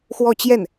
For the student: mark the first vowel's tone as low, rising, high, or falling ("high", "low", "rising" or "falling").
falling